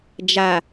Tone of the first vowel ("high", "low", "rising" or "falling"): low